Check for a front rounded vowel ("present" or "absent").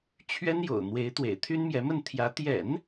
present